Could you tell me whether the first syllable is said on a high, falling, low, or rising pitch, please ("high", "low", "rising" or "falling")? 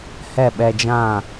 falling